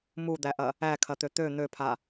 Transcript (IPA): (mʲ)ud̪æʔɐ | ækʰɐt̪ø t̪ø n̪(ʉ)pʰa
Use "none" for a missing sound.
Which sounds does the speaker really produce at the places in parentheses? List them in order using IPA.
m, ø

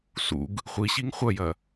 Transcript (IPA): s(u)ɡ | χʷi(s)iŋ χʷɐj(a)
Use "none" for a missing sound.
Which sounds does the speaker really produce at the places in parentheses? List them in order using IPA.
ṵ, ɕ, ɐ

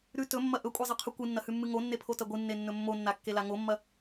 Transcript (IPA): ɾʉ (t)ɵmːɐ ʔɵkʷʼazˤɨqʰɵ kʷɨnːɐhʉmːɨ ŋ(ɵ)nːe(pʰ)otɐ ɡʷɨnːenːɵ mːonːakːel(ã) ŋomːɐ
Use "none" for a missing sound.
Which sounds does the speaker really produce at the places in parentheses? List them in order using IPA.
t, o, pʰ, a

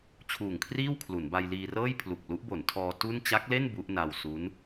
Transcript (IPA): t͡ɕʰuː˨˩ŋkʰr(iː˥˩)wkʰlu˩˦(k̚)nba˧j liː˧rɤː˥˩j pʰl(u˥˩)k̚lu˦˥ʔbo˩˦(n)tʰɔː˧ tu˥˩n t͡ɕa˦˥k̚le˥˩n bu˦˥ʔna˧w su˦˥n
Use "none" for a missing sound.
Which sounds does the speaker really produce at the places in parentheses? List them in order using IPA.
iː˥˩, none, u˨˩, n

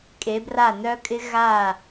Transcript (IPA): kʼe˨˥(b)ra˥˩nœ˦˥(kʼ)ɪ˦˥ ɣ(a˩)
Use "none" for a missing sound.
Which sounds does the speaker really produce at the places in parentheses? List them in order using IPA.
b, kʼ, a˧˩

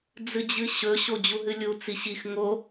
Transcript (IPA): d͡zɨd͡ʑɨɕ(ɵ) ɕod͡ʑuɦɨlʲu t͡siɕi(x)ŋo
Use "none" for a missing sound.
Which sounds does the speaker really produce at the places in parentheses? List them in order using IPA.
ɵ, x

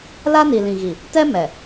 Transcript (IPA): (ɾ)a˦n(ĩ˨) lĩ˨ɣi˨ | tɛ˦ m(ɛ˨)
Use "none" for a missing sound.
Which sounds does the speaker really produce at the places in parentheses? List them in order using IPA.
l, i˨, ɛ˨

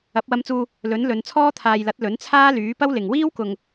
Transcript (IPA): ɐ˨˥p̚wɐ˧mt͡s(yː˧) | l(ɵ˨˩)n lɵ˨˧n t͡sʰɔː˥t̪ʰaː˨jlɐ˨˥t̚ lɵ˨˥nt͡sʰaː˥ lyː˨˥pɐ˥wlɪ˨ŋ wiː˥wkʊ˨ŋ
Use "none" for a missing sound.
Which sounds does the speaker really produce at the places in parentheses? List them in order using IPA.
uː˧, ɵ˨˥

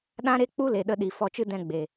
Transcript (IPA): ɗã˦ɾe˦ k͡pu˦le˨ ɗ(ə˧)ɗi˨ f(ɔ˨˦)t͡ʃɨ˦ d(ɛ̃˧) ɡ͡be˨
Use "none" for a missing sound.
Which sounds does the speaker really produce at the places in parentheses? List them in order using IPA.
ə˧, ɔ˧, ɛ̃˧

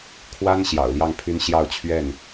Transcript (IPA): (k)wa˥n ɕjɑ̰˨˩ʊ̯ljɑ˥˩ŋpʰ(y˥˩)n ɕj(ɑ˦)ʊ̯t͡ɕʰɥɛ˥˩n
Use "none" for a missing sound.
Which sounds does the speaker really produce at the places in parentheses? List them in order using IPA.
kʰ, y˥, ɑ˥˧

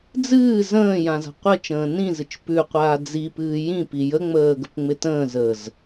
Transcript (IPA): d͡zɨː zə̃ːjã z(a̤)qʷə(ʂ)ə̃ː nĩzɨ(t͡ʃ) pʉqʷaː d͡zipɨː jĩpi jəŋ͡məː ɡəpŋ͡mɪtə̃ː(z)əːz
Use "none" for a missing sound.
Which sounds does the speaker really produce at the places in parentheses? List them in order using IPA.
a̤, t͡ʃ, t͡ʃ, z

